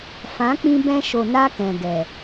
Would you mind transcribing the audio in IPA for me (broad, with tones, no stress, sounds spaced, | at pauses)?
f ã˨˦ k͡p ĩ˧ b ɛ̃˧ ʃ o˨ n a˦ k ɛ̃˨ ɡ ɛ˨